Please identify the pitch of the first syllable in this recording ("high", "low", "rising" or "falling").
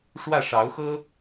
falling